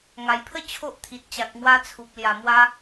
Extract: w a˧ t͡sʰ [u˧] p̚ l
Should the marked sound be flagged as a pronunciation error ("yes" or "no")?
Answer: yes